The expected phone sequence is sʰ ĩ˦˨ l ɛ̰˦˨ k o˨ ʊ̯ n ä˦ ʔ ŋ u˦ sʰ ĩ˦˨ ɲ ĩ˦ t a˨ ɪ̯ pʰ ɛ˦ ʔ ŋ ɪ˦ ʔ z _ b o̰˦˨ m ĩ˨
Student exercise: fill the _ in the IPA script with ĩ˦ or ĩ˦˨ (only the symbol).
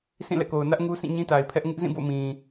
ĩ˦˨